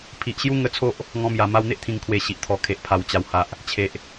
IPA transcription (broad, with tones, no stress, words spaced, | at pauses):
pʰi˨ʔɕju˦ ŋə˧t͡sʰo˦ʔ | ŋɔ̃˧mja˨˩ ma˧wn̪e˦ʔt̪ʰĩ˨˩ŋkʰwe˨˩ ɕi˨ʔt̪ʰɔ˨˩kʰe˨ʔpʰa˨˩w t͡ɕa˨˩wha˨ʔ | t͡ɕʰe˨ʔ